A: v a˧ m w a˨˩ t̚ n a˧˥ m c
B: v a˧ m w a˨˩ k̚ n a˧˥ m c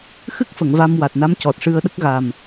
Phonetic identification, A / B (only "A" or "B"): A